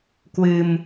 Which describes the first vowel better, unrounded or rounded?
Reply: unrounded